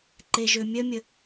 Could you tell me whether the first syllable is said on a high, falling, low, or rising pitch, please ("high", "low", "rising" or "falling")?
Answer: low